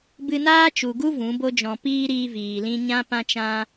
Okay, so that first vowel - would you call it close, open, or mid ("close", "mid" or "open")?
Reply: close